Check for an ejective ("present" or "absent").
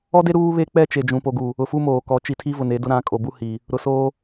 present